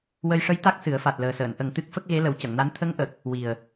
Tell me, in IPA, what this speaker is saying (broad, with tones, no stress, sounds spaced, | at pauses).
w ə˧ j ʂ ə˧˥ j t̪ a˦˥ k̚ s ɨ˨˩˦ ə̯ f a˨˩ t̚ l əː˨˩ s əː˨˩˨ n ʔ ə˨˩ ŋ t̪ ɨ˦˥ k̚ f ə˦˥ k̚ ɣ e˧˥ l ə˨˩˦ w c ə˨˩˨ ŋ n a˧˥ n t̪ʰ ə˧˥ ŋ ʔ ə˨˩ k̚ | w i˨˩ ə̯